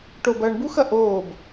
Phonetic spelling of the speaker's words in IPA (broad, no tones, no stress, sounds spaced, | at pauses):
ʈ o b ɐː ɳ b u x ɐ ʔ oː b